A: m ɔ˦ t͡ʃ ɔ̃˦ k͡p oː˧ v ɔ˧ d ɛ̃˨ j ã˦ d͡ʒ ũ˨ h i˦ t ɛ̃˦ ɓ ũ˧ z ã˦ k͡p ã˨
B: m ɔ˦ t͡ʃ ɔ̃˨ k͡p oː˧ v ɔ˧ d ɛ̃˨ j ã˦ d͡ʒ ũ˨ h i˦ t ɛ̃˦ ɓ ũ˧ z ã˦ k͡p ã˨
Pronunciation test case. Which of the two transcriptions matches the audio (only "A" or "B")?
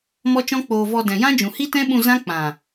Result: A